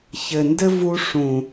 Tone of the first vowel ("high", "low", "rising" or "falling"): low